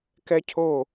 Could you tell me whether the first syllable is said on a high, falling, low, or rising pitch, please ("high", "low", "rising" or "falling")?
high